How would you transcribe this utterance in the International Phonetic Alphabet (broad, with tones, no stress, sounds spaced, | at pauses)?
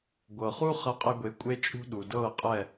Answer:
ɡʷ ɤ˨ χ u˦ χ ɐ˧ qʼ ɛ˧ ɡʷ e˨˦ kʷʼ e˦ t͡ʃʼ ṳ˦ ɗ u˨ d ɤ˦˨ qʼ ɛ˦˨